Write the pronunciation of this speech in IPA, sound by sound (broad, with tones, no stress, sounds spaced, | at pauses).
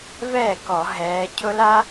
v ɛː˥˩ k ɔ˧˩˧ ɦ ɛː˨˦ cʰ ʊ˦˥ l a˦˥